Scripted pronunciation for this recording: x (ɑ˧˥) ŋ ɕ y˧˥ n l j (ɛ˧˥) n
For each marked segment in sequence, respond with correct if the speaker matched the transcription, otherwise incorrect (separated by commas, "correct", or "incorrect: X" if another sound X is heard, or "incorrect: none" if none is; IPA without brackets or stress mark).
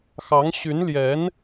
correct, correct